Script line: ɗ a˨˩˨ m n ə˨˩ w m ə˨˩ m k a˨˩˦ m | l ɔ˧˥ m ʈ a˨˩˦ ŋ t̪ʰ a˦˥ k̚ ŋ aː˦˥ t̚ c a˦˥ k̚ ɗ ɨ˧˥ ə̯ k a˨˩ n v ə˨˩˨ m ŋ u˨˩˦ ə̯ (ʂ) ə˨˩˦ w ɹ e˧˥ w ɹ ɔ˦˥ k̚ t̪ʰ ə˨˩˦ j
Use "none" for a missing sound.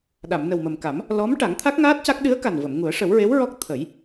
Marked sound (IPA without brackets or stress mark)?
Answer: ʂ